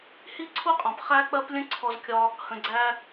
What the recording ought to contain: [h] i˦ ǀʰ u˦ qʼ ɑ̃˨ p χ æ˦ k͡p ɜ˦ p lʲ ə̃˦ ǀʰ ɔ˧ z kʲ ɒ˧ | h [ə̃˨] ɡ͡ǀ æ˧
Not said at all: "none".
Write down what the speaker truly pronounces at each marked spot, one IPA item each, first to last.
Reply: h, ə̃˨

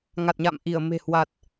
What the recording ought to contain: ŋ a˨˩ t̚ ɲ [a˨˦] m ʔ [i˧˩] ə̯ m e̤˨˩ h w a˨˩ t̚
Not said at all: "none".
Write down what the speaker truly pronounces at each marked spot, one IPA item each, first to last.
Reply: a̰˧˨, i˧˩

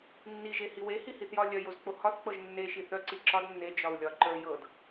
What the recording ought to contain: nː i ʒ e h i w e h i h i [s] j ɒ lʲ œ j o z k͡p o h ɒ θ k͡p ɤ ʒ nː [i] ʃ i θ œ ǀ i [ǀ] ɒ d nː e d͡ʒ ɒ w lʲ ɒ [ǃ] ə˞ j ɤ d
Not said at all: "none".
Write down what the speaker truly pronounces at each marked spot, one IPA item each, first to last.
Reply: θ, e, ǁ, ǃ

